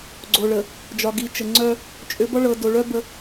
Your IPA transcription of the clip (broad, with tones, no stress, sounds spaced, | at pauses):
ɡ͡ǀ o˨ ɭ ə˨ | d͡ʒ ɒ˨ ɡ i˨ t͡ʃ ə˨ ŋ͡ǀ œ˦ | t͡ʃʼ ʏ˨˦ b ɒ˦ ɭ ɤ˨ d o˨ ɭ œ˦ b ə˦